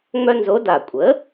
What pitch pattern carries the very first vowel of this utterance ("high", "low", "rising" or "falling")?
high